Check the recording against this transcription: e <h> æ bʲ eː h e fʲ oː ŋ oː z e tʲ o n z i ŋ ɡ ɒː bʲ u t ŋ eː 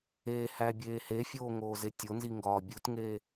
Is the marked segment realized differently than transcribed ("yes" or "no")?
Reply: no